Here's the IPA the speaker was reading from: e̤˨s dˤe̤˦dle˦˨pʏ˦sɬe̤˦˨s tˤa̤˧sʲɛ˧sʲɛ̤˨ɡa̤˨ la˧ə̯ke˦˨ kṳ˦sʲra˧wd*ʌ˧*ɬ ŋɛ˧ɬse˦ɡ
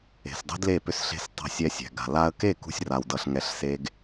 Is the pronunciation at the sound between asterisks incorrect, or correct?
correct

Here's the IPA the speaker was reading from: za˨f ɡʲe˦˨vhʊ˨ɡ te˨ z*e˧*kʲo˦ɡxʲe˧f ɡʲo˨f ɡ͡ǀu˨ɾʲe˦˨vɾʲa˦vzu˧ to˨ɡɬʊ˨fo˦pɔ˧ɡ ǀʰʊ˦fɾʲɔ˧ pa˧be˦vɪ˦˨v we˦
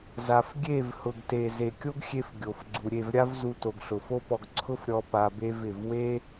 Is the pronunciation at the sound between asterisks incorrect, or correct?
incorrect: e˨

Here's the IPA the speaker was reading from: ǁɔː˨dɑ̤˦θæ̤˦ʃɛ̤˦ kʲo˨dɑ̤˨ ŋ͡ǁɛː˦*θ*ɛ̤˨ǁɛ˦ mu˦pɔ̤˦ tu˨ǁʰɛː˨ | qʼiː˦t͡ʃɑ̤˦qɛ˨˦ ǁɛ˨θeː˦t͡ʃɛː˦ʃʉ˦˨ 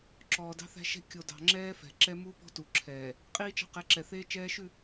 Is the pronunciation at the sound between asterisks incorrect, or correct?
incorrect: f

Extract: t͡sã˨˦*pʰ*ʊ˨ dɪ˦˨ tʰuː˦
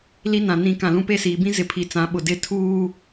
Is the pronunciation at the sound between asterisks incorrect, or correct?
incorrect: ɓ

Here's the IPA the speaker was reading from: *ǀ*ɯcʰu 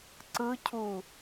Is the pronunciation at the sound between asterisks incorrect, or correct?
correct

